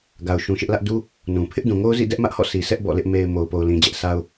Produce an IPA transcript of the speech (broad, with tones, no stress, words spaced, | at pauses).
ɡa˨ʊ̯ʃũ˨ʃɪ˦ʔlä˦ʔ du˦ | nũ˨ pʰɪ˦ʔdũ˨ŋo˦ʊ̯zḭ˦˨ dɛ˦ʔmä˦ʔhɔ̰˦˨ sʰi˨sʰɛ˦ʔ bɔ̰˦˨lɪ˦ʔ me˨ɪ̯ mo˨ʊ̯po˨ʊ̯lĩ˨ d͡ʑɛ˦ʔ sʰa˦ʊ̯